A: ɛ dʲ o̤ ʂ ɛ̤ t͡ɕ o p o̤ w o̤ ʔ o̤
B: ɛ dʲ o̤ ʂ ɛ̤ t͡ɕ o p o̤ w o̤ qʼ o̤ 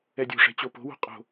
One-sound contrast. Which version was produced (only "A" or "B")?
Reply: B